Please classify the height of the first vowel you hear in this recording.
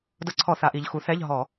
mid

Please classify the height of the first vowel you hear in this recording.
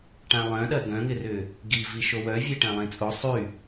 low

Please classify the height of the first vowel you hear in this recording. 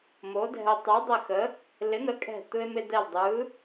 mid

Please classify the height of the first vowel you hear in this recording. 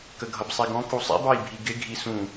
mid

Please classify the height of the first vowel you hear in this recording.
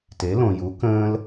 mid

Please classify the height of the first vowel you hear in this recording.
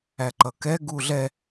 low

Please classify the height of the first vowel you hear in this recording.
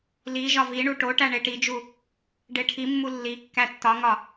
high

